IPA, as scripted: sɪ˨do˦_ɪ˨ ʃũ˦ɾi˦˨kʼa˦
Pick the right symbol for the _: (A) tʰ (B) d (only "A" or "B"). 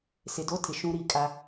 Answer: A